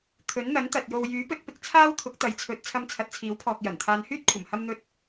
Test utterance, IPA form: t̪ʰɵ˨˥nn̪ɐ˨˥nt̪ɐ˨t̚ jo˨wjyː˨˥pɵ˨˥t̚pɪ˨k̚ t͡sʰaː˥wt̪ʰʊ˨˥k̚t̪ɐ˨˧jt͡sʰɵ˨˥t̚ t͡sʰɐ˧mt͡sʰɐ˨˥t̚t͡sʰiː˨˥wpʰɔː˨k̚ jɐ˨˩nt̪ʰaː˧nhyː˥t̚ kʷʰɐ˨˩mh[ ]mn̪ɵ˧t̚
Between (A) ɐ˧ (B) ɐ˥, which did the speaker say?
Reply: A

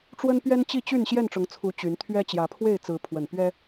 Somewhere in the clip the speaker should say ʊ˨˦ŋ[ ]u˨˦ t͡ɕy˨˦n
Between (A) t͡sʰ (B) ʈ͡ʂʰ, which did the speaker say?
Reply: A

